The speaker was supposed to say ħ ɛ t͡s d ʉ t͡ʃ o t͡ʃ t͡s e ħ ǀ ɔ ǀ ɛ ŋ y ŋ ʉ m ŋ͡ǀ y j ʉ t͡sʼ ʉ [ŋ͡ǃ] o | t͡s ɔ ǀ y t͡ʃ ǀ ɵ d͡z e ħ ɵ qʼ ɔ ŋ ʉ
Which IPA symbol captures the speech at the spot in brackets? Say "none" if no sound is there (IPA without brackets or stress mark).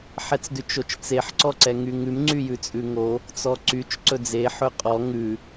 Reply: ŋ